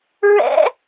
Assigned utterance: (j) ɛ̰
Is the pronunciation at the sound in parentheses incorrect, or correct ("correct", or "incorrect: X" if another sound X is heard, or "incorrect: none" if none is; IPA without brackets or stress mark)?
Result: incorrect: ɹ